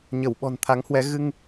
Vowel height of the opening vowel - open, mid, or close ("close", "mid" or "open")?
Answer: mid